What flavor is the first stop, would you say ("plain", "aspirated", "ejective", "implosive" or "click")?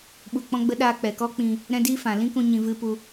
implosive